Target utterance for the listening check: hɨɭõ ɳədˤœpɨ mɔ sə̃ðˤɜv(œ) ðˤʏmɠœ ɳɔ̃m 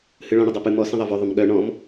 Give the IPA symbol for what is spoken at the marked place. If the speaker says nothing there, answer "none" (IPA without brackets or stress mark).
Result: œ